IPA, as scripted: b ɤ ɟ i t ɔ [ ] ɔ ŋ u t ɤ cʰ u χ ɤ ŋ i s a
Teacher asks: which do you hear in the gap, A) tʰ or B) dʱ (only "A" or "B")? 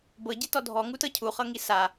B